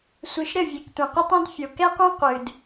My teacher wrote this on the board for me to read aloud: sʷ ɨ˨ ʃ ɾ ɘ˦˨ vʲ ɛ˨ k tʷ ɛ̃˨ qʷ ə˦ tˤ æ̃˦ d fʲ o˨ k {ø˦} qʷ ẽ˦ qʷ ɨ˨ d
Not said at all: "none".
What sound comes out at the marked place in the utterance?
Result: ɛ˦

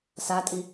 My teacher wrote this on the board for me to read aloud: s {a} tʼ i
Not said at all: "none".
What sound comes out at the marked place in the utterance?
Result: a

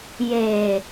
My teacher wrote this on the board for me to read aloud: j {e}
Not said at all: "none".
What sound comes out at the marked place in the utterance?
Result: e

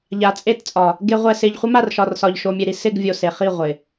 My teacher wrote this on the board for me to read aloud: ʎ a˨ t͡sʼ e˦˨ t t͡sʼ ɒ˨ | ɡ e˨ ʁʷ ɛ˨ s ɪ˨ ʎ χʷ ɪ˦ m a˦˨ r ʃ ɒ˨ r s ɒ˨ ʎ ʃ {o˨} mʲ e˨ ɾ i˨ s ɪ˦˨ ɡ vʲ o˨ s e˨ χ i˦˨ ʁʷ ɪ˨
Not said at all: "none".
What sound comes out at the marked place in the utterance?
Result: o˨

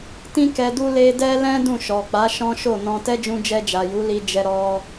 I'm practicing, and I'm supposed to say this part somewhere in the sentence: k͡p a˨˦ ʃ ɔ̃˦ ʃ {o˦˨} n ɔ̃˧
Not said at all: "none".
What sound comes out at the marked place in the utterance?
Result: o˦˨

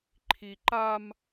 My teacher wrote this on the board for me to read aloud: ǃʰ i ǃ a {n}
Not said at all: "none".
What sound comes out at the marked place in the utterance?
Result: m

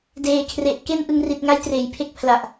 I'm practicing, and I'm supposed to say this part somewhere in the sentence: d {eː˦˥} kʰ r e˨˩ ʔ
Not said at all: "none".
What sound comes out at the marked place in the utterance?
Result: eː˨˩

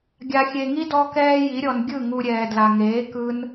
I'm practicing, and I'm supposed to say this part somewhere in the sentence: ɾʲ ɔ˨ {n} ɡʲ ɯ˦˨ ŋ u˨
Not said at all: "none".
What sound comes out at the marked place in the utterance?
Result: n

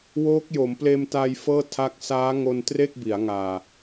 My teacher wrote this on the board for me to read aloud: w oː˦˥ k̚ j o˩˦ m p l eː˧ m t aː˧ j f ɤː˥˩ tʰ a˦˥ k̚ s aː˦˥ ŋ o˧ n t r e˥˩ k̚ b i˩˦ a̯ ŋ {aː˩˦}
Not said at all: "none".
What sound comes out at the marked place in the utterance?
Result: aː˨˩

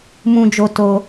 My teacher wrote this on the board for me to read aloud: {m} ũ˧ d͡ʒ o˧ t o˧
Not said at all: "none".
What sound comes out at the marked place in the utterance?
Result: m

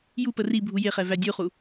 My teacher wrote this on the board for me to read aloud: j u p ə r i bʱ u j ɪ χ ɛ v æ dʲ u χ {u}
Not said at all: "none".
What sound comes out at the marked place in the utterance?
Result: u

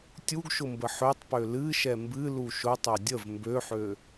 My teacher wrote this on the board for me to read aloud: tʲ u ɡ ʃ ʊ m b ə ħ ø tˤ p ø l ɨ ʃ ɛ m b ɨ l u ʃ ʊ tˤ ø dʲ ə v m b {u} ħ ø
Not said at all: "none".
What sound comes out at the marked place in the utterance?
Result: ø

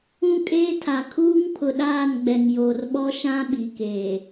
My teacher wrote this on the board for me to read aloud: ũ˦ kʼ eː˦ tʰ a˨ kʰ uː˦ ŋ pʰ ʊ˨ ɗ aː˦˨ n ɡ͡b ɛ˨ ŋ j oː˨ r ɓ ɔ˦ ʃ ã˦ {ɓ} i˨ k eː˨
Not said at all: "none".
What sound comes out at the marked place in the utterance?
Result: ɓ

